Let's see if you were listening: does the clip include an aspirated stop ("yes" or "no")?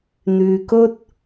no